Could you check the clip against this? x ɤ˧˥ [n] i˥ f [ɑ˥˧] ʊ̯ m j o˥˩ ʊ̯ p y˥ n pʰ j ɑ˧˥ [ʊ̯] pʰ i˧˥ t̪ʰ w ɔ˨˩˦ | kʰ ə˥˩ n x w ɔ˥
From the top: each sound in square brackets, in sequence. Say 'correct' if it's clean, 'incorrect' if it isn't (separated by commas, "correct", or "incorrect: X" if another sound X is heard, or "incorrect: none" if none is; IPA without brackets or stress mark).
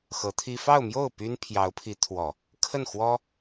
incorrect: t̪ʰ, correct, correct